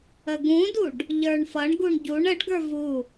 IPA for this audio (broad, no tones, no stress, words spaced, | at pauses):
əɡũduɖ | ʎə˞ɳfʌɳɡuɳ ɟuɳ əɖɡə˞ vu